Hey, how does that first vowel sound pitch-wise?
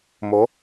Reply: rising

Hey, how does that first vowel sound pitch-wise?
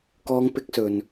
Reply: high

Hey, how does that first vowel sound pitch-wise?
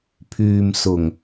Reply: low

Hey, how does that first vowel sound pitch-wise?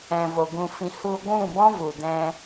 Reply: low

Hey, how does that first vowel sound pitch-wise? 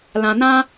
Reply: low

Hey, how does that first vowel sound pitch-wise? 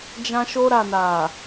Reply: high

